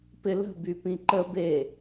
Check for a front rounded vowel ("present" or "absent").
present